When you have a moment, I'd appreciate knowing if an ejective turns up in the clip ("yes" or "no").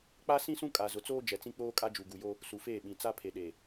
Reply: yes